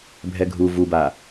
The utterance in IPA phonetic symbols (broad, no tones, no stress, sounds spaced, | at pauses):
bʱ ɛ ɡʱ u v u b a